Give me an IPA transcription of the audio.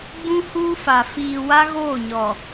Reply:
ɡ͡b ũ˦ h uː˦ f a˨ f iː˨ w a˦ ɣ oː˦˨ ɲ ɔ˨

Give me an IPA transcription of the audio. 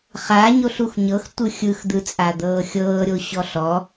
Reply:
χ a ɲ o ɬ u x ɲ ɤ x tʷ ɯ xʲ ɯ x d̪ ɯ t͡sʼ a d̪ ɤː xʲ ɤː ɾʲ o ɕ ɔ ɬ ɔ

